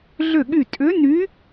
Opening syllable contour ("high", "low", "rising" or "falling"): falling